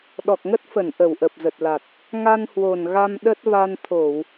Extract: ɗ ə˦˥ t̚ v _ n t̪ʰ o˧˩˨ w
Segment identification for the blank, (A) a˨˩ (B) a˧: B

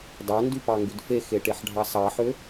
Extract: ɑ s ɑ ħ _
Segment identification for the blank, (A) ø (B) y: A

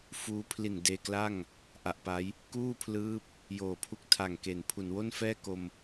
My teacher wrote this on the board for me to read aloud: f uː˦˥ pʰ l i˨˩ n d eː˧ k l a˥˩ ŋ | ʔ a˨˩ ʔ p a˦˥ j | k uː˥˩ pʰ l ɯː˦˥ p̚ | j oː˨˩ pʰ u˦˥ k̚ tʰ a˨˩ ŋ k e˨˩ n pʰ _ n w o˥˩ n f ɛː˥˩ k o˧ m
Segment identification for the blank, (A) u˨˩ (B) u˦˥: A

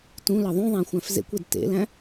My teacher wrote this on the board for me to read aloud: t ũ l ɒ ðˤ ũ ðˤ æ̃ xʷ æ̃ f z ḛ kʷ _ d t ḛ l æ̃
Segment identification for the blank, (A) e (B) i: A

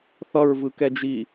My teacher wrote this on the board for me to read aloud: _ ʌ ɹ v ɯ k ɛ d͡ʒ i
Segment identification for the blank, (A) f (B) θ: B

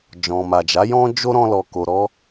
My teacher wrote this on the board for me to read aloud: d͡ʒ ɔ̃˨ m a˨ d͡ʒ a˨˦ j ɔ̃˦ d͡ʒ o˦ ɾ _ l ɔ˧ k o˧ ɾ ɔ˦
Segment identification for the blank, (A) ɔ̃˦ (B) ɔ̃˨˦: A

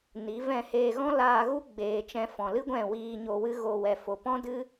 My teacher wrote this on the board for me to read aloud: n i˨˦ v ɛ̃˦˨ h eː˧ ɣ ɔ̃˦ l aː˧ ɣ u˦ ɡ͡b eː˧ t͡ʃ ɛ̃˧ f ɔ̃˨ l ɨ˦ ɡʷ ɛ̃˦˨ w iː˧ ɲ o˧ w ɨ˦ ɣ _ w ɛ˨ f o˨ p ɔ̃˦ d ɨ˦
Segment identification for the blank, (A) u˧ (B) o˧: B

